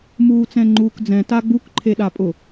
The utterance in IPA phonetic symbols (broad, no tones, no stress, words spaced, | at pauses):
muːt͡sɛ̃ŋ͡ǃuːkd͡zɛ̃ taɡ͡buk ǃʰeɗapʼʊ